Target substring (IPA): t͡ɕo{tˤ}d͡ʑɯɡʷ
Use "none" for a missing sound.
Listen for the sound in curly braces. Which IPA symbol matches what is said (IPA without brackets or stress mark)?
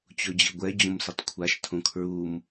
none